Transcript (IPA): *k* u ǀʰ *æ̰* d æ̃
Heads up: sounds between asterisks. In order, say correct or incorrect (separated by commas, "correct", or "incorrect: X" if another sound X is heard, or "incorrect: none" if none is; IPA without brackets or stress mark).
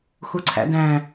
incorrect: x, correct